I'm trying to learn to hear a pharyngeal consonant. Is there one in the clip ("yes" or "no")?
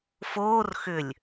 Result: no